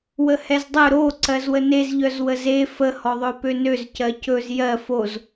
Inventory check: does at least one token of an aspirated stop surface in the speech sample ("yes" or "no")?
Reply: no